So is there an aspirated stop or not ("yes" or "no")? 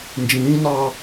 no